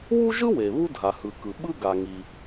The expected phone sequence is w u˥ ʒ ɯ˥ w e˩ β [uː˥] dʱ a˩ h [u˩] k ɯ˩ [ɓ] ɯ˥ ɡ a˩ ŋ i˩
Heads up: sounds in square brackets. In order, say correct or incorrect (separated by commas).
incorrect, incorrect, correct